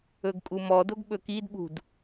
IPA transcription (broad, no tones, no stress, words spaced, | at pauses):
ɵɡkʼumɔdoɡ ɓɵkidɓṳd